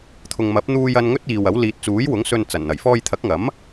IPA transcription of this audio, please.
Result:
t̪ʰ ʊ˨ ŋ m ɐ˨˥ p̚ n̪ uː˧ j ɐ˧ n ŋ ɵ˥ t̚ iː˨ w ɐ˨˥ w l iː˨ t̚ t͡s uː˨˥ j w ʊ˨˥ ŋ s ɵ˧ n t͡s ɐ˨˩ n n̪ ɐ˨˩ j f ɔː˧ j t̪ʰ ɐ˨˥ k̚ ŋ ɐ˨˥ m

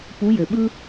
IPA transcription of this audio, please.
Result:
p u˨˦ j ɘ˩ ɓ ɯ˦

